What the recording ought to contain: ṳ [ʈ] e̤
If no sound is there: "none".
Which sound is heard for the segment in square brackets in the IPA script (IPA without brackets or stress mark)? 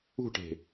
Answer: ʈ